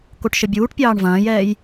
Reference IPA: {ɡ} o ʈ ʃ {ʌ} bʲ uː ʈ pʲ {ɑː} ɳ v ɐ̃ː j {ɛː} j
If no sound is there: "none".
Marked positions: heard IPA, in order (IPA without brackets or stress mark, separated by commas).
k, ə, ɑː, ɛː